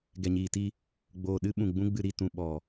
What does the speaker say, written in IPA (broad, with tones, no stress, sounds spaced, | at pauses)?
ɡ ɛ˨ ɲ iː˨ t i˧ | ɡ͡b oː˨ ɗ ɨ˦ ɓ ũ˨ ɡ͡b ũ˦ ɡ͡b ɨ˧ ɾ i˦˨ t ũ˨ ɓ ɔ˨